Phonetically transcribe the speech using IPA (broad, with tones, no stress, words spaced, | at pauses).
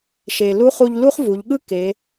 ʃe˩ lu˧˥χu˧ʎ lu˥χvu˩˧ʎɠɯ˥ ke˩˧